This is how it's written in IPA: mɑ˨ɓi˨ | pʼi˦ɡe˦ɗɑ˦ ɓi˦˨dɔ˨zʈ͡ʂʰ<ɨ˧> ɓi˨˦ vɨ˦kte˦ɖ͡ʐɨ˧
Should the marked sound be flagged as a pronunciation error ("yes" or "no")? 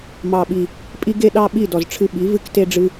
no